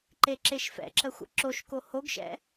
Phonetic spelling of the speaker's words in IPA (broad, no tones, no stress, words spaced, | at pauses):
ǃeǁeʃfɛ̰ǁə xʷə̰ǁoʃko hoɡʃɛ̰